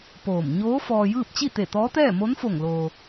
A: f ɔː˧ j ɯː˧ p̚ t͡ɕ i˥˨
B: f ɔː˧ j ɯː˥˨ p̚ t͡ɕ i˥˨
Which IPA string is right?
B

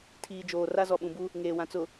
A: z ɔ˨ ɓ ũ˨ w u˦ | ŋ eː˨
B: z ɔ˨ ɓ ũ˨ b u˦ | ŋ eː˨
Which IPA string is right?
B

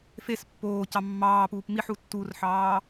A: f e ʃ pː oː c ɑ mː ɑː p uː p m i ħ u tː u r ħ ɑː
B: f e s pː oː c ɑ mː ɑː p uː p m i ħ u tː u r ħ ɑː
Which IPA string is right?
B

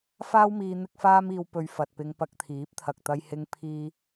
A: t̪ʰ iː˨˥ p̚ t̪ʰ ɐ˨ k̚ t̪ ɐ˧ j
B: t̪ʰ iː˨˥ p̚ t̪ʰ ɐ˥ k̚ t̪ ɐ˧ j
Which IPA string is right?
A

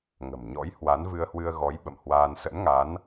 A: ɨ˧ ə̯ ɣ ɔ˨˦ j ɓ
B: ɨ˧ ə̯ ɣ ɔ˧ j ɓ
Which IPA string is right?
A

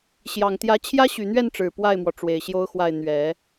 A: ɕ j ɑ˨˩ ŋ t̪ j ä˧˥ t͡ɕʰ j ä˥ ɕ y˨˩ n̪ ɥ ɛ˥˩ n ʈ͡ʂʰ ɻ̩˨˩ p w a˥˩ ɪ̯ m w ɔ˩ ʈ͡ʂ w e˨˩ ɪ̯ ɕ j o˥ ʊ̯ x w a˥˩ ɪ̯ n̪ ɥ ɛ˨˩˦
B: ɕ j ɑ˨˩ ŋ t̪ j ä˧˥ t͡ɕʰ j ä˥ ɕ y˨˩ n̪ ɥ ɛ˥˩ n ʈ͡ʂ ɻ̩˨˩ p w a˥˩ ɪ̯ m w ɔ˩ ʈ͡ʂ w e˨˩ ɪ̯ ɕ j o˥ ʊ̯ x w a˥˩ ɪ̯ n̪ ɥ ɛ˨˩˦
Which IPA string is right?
B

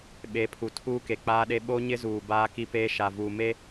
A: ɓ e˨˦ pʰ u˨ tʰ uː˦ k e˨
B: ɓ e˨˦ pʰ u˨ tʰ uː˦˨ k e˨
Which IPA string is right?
A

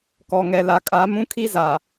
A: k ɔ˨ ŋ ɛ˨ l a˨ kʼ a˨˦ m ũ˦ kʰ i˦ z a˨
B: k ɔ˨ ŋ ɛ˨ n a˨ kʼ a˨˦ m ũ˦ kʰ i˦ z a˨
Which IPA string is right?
A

